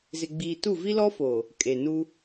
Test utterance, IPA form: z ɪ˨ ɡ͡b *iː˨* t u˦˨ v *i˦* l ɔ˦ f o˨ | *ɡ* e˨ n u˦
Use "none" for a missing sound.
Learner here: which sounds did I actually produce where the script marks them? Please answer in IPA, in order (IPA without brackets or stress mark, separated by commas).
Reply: iː˨, i˦, kʼ